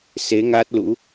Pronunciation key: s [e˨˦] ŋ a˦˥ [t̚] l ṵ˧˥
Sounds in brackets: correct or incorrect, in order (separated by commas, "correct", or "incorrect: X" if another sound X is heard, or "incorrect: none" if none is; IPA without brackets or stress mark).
correct, correct